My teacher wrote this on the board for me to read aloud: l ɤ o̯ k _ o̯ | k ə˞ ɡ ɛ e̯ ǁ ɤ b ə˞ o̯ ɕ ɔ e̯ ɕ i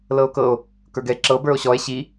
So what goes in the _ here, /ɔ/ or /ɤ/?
ɤ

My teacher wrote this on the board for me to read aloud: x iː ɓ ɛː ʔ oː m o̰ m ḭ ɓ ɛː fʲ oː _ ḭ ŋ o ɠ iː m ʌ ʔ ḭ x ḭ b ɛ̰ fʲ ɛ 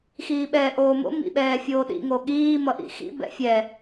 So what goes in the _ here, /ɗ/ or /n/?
ɗ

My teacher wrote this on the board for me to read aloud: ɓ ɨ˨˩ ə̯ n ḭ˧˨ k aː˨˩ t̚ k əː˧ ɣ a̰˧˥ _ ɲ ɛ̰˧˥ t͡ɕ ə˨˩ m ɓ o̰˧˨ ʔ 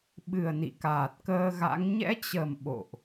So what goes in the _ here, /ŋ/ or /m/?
ŋ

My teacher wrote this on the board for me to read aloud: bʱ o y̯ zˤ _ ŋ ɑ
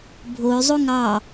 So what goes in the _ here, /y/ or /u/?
u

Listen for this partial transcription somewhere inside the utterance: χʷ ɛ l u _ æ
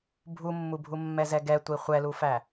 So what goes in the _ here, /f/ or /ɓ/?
f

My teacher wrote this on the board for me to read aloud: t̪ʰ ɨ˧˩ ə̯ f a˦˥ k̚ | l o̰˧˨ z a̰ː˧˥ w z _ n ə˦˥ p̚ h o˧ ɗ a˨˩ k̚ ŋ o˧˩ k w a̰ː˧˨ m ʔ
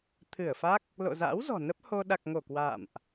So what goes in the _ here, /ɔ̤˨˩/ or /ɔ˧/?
ɔ̤˨˩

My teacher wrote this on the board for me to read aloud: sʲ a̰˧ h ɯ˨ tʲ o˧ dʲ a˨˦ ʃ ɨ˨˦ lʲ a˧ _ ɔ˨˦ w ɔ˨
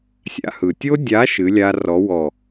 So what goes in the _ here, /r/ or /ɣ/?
r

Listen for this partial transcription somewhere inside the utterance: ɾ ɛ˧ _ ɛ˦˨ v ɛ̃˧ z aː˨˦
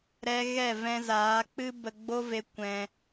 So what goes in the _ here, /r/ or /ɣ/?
ɣ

